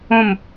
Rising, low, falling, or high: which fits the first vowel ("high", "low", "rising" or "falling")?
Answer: falling